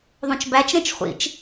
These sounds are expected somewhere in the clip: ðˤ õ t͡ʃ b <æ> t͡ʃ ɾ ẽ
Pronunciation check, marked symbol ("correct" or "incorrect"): correct